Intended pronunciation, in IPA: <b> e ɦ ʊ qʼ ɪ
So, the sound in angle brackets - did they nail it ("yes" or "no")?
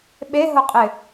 no